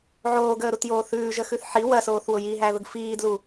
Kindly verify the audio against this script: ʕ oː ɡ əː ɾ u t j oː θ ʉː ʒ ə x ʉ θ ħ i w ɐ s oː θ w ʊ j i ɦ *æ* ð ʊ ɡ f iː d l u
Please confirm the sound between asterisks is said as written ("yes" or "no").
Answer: yes